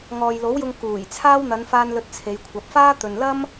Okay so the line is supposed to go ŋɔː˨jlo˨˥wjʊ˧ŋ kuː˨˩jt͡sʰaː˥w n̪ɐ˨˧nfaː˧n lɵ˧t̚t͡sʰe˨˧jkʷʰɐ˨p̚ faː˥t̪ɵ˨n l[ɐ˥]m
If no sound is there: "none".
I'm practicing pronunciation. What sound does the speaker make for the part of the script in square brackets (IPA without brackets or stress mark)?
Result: ɐ˥